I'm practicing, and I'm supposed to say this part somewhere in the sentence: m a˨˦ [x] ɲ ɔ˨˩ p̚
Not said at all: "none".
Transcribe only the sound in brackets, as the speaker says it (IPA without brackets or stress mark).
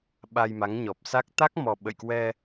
ŋ